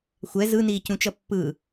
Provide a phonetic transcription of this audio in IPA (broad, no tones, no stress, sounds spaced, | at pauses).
xʷ ɛ z ɯ n iː c ũ t͡ʃ ʌ pː ɯ